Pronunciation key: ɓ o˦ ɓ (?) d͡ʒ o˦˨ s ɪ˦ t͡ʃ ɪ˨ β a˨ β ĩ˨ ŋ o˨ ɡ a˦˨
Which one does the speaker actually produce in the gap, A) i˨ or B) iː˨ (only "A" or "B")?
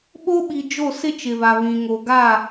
A